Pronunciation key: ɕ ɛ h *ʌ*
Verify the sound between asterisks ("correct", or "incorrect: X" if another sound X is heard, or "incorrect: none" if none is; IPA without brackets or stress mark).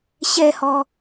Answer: incorrect: ɔ